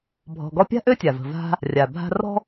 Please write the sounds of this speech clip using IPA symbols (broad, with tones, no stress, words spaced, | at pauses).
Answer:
bʱɔ̤˨ɡɔ˦pʲa̤˥ ʔø˥tʲa˩və̤˨ va̤˦ | rʲa˩bʱa̤˦rɔ̤˥